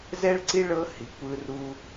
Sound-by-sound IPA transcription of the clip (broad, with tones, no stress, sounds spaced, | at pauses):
z ɛ˥ ɭ ǀ i˥ ɭ ɤ˥ h i˨ kʷ ɯ˦ r u˥